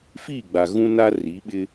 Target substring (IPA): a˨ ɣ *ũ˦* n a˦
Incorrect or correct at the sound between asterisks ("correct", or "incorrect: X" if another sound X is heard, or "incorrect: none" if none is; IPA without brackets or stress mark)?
correct